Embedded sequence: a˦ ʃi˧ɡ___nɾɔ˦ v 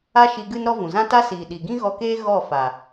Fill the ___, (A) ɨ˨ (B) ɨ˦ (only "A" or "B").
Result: B